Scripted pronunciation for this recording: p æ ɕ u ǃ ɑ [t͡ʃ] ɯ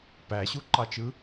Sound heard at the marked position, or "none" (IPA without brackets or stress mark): t͡ʃ